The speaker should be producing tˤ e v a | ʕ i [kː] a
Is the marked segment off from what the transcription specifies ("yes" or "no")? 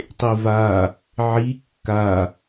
no